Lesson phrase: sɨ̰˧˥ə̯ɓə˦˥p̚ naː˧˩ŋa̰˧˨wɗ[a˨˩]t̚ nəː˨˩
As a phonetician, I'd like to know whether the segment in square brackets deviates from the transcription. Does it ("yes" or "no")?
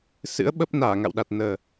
no